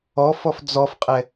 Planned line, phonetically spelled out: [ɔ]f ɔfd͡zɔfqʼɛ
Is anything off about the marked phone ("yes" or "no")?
no